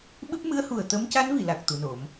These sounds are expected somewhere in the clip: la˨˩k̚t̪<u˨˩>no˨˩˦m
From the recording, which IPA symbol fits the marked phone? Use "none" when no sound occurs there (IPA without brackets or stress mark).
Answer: u˨˩